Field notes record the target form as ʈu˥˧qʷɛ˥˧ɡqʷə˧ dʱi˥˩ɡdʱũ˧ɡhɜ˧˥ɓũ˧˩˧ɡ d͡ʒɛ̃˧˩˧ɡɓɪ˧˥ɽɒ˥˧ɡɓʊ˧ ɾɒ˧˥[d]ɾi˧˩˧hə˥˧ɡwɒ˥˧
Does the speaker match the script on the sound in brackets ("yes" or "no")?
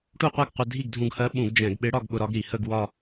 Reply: no